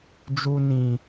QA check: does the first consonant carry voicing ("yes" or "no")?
yes